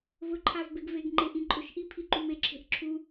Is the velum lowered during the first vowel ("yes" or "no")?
no